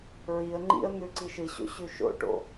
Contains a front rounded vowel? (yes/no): no